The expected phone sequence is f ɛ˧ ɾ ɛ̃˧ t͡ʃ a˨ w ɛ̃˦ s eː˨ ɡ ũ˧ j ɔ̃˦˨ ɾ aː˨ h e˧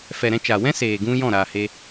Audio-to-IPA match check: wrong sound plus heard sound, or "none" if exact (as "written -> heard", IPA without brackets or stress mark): ɛ˧ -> ɛ˨